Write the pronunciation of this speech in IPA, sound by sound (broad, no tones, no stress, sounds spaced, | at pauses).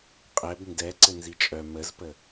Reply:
qʼ ɛ b n d ɛ ǀ ɘ n z i t͡ʃʼ œ m ə z p ə